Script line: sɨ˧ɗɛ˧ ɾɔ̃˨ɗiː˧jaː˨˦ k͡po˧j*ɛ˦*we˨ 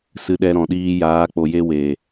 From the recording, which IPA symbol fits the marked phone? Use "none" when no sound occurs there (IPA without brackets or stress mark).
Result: e˦